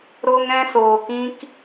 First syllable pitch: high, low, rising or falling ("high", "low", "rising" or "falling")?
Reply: high